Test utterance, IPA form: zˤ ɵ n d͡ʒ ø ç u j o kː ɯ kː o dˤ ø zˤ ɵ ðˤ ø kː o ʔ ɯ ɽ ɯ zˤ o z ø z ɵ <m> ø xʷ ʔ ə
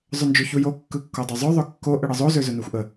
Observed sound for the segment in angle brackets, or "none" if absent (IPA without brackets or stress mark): n